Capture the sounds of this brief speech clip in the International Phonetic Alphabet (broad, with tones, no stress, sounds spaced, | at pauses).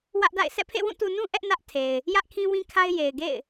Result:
w ä˦ ʔ d a̰˦˨ ɪ̯ sʰ ɛ̰˦˨ pʰ ḛ˦˨ w ũ˦˨ t u˨ n ũ˦ ʔ ɛ˦ ʔ n ä˦ ʔ tʰ e˨ ɪ̯ | j ä˦ ʔ kʰ ĩ˦ w ĩ˦ kʰ a˦ ɪ̯ j e˨ ɪ̯ ɡ ḛ˦˨ ɪ̯